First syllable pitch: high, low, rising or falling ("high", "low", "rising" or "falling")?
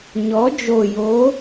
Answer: rising